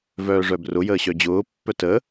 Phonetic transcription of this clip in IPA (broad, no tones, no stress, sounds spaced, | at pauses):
v œː ʐ œ b r ʊ j əː ɕ œ d͡ʑ ʊː pː œ t ə